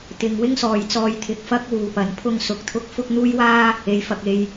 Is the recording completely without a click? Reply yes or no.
yes